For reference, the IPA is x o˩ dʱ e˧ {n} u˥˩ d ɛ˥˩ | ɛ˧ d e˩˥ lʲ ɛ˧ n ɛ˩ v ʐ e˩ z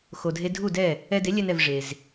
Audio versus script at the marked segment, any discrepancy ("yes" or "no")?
yes